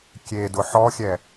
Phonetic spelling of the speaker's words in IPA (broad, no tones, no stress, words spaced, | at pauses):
kʲedʊ ħɔxʲɛ